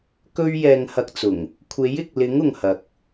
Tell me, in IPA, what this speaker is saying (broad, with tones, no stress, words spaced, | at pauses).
kɵ˥ɥ jɛː˧ŋhɐ˧k̚t͡sʊ˨˩ŋ | kʷʰe˨˥jɪ˨k̚lɪ˨˥ŋ ʊ˨ŋhɐ˨k̚